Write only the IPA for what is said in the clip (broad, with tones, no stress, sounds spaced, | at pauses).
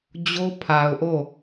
d͡ʑ o˦ pʰ a˨ ʊ̯ ʔ o˦˨